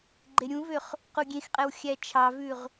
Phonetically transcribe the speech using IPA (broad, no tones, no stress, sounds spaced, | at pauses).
ɡ͡ǃ e ɾʲ ũ v ø χ | q u ɡʲ ẽ x qʼ ɛ w xʲ æ t͡ʃʰ ɑ v ʉ ʁ